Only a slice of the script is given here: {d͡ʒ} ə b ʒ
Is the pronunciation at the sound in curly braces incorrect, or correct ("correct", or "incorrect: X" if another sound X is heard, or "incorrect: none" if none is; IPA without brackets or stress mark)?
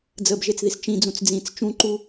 incorrect: d͡z